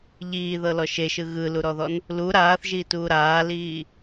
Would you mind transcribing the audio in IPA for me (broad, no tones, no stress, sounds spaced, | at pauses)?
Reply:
ʎ iː ð ɤ l ɔ ʃ e ʃ ɯ ɣ ɯ l u ɾ ɔ ð ɔ n | l u ɾ aː θ ʒ iː t uː ɾ aː l iː